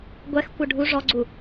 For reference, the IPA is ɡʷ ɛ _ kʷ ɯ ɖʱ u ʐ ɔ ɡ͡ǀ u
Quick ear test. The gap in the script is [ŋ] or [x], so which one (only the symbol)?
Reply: x